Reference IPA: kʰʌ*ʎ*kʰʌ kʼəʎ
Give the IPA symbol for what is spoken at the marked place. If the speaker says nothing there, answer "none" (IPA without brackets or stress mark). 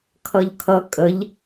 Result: ʎ